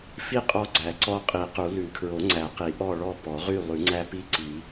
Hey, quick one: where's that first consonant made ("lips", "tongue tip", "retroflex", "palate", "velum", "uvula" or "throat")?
lips